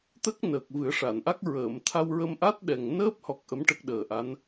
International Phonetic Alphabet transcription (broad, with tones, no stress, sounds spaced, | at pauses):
t̪ ə˦˥ k̚ n əː˨˩ k̚ v ɨ˨˩˦ ə̯ ʂ a˨˩˨ n ʔ a˦˥ k̚ ɹ əː˨˩˨ m t̪ʰ a˧ w ɹ ə˧ m ʔ a˦˥ t̚ ɗ ɛ˨˩ ŋ n əː˦˥ p̚ h ɔ˨˩ k̚ ʔ ə˧˥ m ʈ ə˦˥ k̚ ɗ əː˨˩ ʔ a˧˥ n